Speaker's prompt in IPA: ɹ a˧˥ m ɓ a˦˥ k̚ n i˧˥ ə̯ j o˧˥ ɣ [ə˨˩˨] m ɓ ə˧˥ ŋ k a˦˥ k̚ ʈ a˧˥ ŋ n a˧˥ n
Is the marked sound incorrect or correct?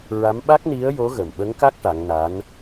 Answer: incorrect